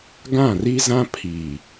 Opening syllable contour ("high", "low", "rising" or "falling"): falling